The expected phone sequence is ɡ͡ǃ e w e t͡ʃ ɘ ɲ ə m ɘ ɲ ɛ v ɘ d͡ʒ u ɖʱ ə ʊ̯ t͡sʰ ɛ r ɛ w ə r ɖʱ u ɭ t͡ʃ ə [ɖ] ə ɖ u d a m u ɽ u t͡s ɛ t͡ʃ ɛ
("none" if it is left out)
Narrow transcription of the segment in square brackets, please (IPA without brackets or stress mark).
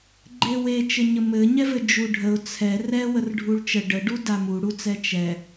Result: ɖ